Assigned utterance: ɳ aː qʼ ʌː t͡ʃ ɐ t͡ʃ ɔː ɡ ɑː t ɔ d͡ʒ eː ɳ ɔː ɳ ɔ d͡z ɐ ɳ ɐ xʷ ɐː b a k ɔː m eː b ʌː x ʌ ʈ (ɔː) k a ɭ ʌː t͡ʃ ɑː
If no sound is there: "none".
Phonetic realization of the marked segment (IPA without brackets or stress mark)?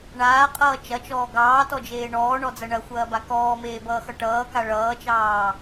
ʌː